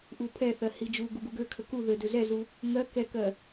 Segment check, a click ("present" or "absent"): absent